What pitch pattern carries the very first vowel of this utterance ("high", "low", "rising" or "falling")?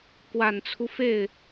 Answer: low